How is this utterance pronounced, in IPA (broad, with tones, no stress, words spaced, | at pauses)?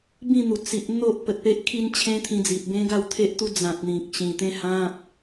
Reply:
bĩ˥˧n̪u˨˩ t͡si˨ʔ n̪o˦ʔ pə˨t̚pe˦ʔ kʰi˦nt͡ɕʰẽ˦t̪ʰĩ˧d͡zi˨p̚ bẽ˦ɡa˥˧wt̪ʰe˦ʔt̪u˦ d͡zã˨t̚n̪ĩ˨k̚ ɕĩ˨˩t̪ẽ˥˧hã˦p̚